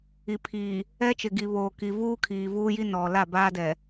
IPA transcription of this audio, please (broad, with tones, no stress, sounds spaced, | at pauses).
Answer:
i˨ pʰ iː˨ | ɛ˦ t͡ʃ ɪ˨ ɡ i˨ β oː˨ k i˨ v uː˦ kʰ iː˨ v uː˦ j i˦ n ɔ˨ l a˦˨ b aː˦ d ɛ˨